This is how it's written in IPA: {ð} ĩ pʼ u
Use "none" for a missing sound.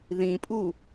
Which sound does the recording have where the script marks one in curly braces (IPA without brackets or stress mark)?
ð